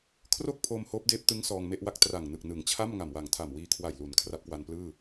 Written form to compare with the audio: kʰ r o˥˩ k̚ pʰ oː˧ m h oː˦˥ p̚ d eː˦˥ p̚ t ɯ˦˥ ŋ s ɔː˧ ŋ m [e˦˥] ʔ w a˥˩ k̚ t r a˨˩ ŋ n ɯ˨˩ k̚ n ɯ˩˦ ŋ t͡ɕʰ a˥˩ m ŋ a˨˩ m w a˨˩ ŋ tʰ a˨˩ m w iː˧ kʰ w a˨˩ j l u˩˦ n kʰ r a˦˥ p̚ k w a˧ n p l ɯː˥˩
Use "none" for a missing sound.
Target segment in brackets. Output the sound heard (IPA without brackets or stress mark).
e˥˩